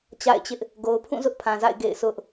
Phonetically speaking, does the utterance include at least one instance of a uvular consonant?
no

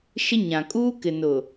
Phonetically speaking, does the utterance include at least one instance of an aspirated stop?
no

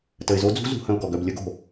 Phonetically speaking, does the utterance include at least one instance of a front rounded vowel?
yes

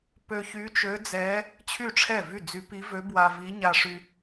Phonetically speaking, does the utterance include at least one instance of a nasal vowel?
no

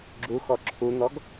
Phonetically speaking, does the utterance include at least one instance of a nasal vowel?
no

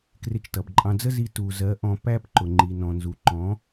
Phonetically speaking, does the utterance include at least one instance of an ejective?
yes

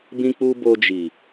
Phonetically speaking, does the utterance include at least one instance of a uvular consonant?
no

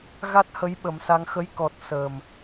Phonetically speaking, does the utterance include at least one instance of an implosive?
yes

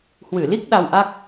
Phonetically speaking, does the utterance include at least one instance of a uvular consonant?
no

